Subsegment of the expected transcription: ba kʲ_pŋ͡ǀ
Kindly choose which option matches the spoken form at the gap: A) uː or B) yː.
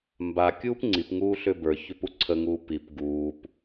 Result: A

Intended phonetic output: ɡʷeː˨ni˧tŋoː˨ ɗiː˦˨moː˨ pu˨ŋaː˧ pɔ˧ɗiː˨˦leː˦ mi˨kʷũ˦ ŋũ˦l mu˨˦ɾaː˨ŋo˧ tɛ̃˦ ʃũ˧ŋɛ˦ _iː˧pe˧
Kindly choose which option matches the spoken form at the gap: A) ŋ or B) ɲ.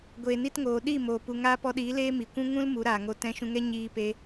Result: B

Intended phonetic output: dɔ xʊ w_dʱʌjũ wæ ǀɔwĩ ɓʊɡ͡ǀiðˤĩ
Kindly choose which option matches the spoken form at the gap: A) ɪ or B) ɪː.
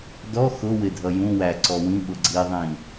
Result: A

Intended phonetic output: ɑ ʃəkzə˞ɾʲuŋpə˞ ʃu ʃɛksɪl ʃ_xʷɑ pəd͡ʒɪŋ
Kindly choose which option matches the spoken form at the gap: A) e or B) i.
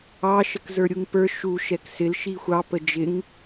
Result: B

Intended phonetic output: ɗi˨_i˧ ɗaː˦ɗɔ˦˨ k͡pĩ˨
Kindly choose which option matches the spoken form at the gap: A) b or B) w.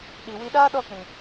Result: B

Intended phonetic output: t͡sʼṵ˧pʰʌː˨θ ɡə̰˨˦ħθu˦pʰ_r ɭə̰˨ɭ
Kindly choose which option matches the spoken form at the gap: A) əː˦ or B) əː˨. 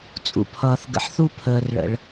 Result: B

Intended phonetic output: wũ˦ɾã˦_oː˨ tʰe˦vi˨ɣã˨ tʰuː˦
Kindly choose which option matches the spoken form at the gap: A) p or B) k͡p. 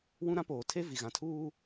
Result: A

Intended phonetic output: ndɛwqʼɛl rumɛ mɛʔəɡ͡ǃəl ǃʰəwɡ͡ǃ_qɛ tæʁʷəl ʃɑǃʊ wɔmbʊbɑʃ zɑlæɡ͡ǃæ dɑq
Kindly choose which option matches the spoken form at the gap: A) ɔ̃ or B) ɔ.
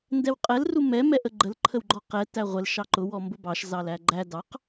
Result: B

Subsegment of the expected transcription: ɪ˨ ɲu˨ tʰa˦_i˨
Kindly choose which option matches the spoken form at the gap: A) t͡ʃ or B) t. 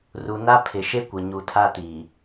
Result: B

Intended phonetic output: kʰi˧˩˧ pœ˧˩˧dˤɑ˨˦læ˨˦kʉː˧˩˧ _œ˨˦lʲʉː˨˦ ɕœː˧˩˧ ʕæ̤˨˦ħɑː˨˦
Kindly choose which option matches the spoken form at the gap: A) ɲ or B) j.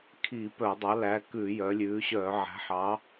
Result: B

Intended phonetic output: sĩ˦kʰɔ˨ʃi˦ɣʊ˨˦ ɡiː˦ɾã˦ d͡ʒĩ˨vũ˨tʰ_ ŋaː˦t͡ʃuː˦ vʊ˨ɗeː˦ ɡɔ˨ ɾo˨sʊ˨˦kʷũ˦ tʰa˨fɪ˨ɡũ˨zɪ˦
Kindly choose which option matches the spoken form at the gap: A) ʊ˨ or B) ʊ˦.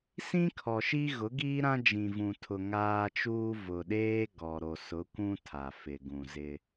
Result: A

